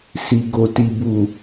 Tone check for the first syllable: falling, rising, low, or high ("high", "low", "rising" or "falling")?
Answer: low